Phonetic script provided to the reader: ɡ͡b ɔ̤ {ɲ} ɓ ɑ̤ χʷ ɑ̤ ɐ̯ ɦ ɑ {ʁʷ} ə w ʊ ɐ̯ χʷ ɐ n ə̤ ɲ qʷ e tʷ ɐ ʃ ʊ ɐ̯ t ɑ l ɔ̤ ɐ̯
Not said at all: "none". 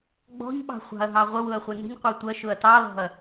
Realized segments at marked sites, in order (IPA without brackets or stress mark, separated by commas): ɲ, ʁʷ